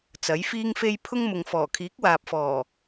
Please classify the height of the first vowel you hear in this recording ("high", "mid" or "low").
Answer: low